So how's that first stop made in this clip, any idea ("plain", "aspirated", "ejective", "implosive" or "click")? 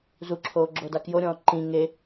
click